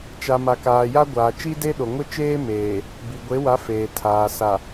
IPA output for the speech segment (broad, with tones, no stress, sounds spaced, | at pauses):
t͡ʃ a˨ m a˨ k aː˨ j a˦ ɡʷ aː˨ t͡ʃ i˦ d e˦ ɗ o˨ ŋ ʊ˦ t͡ʃ eː˦ m eː˨ | b i˨ ɡʷ e˨˦ w a˨˦ f eː˨ tʰ aː˨ s a˨